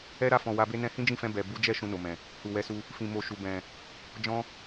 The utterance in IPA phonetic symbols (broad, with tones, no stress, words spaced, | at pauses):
ɛ˦ɾa˦˨fɔ̃˨ wa˧be˦ nɛ̃˧hĩ˦d͡ʒĩ˦˨fɛ̃˧ bɛ˨ bu˨˦d͡ʒɛ˦˨ ʃũ˧no˨mɛ̃˨ | hu˨wɛ˨˦su˧ | fĩ˨mo˨ʃu˨ bɛ̃˨ | d͡ʒɔ̃˦